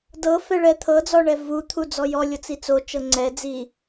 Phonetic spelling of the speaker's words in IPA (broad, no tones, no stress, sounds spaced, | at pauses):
d ɤ f ɛ ɭ ɛ t̪ʰ ɤ d͡z ɔ ɳ ɛ v u t̪ʰ u d͡z ɔ j ɔ lʲ ɔ t͡s i t͡s o t͡ʃ ɤ ŋ͡ǀ ɛ d͡z i